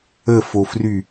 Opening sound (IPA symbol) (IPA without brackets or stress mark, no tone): ə